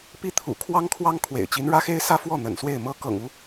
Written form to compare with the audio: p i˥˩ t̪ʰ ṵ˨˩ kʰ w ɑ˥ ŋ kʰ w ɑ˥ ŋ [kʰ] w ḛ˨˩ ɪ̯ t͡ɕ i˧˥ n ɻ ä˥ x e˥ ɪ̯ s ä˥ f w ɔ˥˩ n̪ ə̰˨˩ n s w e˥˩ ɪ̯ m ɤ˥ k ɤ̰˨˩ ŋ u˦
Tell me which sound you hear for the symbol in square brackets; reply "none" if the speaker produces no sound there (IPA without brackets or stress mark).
kʰ